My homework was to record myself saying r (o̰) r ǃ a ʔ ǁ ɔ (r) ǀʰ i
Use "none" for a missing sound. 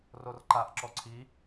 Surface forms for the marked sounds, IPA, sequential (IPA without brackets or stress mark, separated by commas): o, none